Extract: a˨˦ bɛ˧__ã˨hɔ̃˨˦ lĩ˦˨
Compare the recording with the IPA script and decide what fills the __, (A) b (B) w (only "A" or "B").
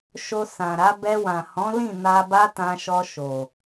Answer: B